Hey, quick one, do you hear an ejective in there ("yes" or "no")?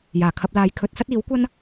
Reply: no